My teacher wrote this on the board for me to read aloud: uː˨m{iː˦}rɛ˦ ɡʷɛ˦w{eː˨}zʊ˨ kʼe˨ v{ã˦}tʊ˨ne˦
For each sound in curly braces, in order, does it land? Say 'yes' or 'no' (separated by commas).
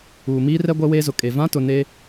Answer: yes, no, yes